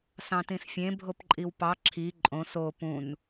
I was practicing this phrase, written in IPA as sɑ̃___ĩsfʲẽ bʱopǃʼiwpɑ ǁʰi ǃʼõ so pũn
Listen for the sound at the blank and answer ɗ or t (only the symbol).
t